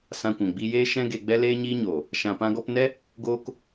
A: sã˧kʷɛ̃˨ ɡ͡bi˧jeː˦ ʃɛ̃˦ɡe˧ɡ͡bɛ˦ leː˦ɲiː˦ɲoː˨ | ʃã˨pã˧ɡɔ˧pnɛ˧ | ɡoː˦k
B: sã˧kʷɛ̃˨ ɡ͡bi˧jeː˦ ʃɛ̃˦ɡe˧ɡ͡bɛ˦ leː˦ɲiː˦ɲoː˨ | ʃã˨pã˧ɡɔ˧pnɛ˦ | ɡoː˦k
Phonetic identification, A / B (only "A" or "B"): B